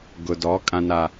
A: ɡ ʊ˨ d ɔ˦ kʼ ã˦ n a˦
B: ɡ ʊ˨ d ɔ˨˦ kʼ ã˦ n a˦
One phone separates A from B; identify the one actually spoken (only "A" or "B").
B